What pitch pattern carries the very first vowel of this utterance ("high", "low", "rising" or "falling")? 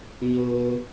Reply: high